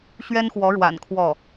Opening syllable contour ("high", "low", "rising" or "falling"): high